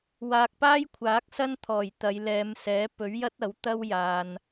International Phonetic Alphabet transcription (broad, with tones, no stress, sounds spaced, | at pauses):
w aː˨ k̚ p aː˥ j kʷʰ aː˨˥ k̚ s ɐ˥ n t̪ʰ ɔː˨˩ j t̪ ɐ˨˧ j l ɛː˨˧ m s ɛː˨˥ p ɵ˨˥ ɥ j ɐ˥ t̚ ɐ˨˥ w t̪ ɐ˥ w j aː˨ n